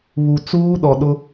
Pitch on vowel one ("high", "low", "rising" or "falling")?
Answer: low